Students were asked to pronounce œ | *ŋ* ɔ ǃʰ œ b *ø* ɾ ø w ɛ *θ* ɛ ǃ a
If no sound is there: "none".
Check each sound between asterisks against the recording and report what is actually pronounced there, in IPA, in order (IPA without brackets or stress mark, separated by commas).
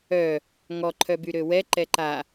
ŋ, y, ǃ